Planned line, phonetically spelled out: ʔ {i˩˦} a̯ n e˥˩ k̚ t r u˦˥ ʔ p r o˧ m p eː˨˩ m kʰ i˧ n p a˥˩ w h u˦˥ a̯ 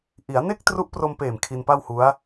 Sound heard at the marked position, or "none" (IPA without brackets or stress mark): i˩˦